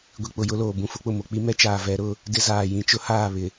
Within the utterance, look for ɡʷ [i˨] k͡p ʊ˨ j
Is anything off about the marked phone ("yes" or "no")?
no